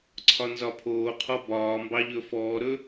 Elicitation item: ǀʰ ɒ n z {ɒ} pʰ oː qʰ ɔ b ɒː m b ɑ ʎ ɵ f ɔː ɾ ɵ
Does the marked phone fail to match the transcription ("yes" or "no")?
no